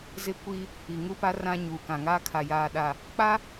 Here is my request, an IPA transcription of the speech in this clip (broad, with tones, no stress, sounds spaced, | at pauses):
z ɪ˦ kʷ i˦ | i˨ ŋ u˦ p a˦ r ã˦ ɲ u˨ k ã˨ ŋ aː˦ kʰ a˨ j aː˨ ɗ a˨ | k͡p a˦